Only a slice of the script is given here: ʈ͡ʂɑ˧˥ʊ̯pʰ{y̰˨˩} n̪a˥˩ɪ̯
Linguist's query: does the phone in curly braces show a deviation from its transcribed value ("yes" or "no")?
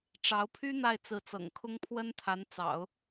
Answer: yes